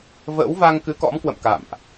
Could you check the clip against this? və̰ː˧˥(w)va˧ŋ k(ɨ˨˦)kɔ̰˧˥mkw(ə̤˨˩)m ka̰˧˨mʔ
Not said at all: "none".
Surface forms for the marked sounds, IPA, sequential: w, ɨ˨˦, ə̰˧˨

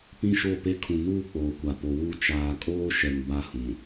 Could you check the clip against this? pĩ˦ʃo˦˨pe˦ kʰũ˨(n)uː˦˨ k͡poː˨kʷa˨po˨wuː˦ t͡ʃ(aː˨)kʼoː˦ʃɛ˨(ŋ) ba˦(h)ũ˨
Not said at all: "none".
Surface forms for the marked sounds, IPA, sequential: n, aː˨, ŋ, h

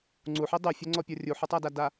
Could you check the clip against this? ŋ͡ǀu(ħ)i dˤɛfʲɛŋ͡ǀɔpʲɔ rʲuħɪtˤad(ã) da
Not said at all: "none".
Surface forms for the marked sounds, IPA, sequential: ħ, a

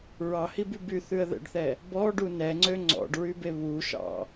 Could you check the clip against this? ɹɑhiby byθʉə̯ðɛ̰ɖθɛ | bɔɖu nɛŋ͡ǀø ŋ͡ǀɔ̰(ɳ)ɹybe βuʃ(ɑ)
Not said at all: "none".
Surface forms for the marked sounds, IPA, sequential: ɖ, ɑ̰

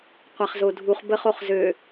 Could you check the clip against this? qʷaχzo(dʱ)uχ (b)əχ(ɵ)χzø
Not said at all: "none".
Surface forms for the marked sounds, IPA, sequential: dʱ, b, o

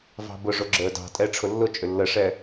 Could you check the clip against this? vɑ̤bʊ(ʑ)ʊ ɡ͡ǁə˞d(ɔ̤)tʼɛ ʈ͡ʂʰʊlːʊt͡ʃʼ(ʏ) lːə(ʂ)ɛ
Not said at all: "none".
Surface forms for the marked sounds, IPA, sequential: ʐ, ɑ̤, ʏ, ʂ

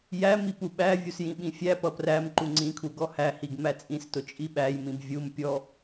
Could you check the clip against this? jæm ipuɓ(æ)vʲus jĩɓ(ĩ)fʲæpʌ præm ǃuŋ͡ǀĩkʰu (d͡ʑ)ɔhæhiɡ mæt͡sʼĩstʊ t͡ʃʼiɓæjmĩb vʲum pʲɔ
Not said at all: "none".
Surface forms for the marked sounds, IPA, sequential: æ, ĩ, ɡ

